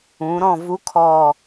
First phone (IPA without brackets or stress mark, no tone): ũː